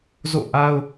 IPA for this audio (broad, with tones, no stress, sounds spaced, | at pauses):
z o̰˦˨ ʔ a˦ ʊ̯